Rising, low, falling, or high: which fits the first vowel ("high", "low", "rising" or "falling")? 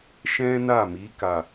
high